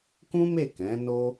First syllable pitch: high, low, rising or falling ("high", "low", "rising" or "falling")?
high